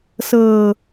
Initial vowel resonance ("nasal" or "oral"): oral